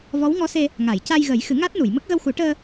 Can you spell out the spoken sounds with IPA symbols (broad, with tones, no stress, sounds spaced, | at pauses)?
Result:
v ɔ˧˥ w ŋ ɔ˧˥ s e˧ | ŋ a˨˩˨ j c a˧ j ɣ ə˨˩˦ j x ɨ˨˩˦ ŋ a˦˥ t̚ n u˨˩˨ j m ə˦˥ k̚ ɣ ə˧ w x u˨˩˦ ʈ əː˧